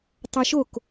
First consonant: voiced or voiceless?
voiceless